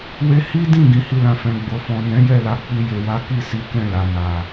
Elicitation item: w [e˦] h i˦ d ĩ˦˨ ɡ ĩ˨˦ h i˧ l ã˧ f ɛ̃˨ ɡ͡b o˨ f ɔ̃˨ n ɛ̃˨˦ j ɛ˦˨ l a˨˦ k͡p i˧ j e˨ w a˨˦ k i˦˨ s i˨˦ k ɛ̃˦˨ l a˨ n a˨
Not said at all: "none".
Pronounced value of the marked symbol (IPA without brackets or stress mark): e˧